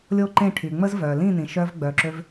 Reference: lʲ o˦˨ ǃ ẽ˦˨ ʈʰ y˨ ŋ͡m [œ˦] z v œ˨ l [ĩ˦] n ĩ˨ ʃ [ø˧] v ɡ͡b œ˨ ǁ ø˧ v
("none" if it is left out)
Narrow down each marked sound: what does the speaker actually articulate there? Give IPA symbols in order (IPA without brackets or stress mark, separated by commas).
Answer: ə˦, ĩ˦˨, œ˧